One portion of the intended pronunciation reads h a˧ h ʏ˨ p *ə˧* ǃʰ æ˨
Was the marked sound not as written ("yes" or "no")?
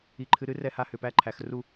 yes